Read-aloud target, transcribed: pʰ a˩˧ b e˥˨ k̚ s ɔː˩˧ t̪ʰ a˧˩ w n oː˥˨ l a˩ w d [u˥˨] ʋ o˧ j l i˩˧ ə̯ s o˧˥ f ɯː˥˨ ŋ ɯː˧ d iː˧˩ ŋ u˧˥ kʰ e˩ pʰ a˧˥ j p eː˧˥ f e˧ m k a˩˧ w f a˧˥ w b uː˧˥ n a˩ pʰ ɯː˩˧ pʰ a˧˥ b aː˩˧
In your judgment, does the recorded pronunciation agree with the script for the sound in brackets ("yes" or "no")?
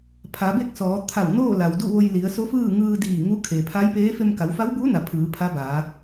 yes